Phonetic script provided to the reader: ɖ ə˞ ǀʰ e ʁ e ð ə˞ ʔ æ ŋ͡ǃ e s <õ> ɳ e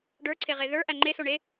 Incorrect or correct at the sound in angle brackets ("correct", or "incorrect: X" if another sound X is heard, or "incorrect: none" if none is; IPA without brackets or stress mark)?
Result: incorrect: o